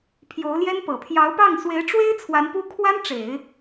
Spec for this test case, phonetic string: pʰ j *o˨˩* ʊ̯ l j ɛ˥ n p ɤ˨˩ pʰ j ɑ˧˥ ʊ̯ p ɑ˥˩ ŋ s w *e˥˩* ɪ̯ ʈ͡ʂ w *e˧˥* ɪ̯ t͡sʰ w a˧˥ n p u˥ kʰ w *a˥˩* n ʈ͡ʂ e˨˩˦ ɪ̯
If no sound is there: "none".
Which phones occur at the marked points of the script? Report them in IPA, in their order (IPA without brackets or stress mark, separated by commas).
o˧˥, e˧˥, e˥, a˥